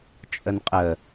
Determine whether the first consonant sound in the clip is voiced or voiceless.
voiceless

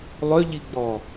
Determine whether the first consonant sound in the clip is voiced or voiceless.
voiced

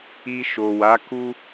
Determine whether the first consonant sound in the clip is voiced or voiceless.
voiceless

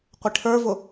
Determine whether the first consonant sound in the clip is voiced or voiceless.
voiceless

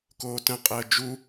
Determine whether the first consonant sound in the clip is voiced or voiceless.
voiceless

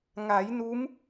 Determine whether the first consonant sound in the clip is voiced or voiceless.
voiced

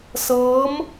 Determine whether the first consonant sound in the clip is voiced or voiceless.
voiceless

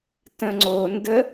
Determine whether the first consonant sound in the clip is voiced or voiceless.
voiceless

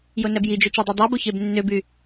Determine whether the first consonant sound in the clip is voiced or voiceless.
voiced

